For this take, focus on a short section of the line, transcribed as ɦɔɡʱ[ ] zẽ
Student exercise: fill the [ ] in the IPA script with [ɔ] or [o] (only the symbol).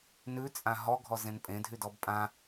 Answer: ɔ